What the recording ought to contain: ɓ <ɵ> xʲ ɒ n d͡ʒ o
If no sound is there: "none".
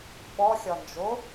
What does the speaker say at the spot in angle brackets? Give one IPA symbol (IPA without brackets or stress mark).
ɔ